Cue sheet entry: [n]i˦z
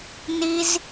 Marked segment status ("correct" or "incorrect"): correct